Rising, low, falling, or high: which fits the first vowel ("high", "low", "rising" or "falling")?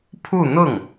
falling